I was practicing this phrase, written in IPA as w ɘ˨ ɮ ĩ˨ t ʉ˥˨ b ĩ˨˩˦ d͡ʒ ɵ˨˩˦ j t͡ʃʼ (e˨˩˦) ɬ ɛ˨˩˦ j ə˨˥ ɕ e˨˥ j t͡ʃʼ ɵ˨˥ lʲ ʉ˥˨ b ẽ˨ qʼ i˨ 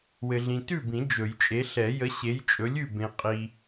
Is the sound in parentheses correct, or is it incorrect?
incorrect